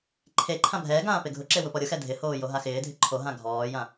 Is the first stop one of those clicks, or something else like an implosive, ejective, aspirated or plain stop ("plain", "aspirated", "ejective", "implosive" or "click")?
click